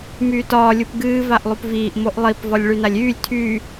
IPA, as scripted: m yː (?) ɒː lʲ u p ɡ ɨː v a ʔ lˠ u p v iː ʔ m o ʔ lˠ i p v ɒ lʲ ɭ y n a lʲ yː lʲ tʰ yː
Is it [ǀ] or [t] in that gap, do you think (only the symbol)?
t